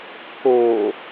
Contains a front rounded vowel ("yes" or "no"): no